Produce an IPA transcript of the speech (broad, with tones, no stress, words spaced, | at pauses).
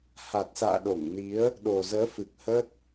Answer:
ha˨˩t̚sa̰ː˧˨ɗo˧˩ŋni˨˦ə̯ | ɗo˨˩zəː˨˦fɨ˨˩k̚hə˦˥t̚